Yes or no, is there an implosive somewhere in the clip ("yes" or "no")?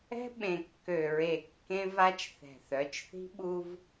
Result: yes